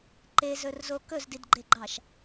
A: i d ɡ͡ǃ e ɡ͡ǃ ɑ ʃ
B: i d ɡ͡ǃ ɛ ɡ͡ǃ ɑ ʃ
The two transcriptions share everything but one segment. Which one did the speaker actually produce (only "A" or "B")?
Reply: A